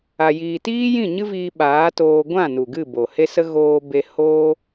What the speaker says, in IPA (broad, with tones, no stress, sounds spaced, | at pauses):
a˧ j iː˧ t iː˦ j ĩ˦˨ ɲ ɨ˦ v iː˧ ɓ aː˨˦ t oː˧ ɡʷ ã˦˨ n u˨ ɡ ɨ˦˨ b o˨ h e˦ s ə˦ ɣ oː˧ b e˧ h oː˦